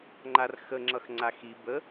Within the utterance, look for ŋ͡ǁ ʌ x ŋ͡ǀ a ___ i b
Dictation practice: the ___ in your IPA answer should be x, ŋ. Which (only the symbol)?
x